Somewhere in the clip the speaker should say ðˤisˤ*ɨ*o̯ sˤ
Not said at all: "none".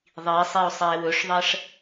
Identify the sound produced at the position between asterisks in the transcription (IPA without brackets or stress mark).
i